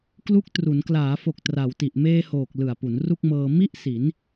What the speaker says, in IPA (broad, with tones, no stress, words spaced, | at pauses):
klu˦˥k̚ tru˩˦n klaː˩˦fo˨˩k̚ tra˩˦wti˨˩ʔ meː˧hoː˨˩k̚ lɯ˨˩a̯pu˩˦n ru˥˩k̚mɤː˧ mi˥˩ʔsi˩˦n